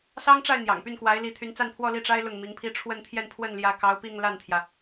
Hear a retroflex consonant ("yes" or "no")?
yes